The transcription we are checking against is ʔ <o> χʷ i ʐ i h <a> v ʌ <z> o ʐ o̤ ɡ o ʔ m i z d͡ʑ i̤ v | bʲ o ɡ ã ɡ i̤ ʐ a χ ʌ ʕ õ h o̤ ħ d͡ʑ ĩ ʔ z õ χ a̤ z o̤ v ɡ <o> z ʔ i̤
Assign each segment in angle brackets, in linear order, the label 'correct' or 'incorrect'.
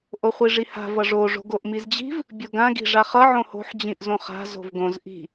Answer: correct, incorrect, incorrect, incorrect

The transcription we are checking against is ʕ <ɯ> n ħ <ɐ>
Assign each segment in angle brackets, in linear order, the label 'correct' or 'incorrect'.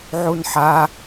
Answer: incorrect, incorrect

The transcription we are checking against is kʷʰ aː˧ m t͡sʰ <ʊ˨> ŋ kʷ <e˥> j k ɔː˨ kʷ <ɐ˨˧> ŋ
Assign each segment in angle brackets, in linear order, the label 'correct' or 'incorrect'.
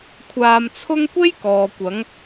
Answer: incorrect, correct, correct

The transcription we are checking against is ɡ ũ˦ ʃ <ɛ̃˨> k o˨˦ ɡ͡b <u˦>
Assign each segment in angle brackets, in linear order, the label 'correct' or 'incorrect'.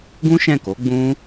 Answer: incorrect, incorrect

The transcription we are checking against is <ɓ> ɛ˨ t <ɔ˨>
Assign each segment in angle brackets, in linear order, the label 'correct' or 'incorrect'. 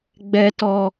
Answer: incorrect, correct

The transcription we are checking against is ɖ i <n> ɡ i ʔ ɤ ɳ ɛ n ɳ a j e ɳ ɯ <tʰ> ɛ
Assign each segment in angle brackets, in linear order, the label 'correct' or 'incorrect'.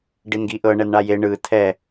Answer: correct, correct

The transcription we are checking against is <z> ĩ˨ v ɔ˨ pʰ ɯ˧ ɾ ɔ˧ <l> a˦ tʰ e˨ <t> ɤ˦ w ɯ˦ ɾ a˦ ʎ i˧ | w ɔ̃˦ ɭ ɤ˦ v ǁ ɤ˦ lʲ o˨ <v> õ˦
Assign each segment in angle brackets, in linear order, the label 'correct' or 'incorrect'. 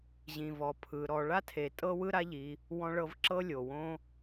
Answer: incorrect, incorrect, incorrect, incorrect

